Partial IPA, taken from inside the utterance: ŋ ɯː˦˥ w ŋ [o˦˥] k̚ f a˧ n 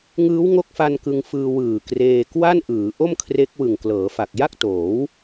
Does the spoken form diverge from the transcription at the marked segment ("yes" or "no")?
no